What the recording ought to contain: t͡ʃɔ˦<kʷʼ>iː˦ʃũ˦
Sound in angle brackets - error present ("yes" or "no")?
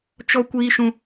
yes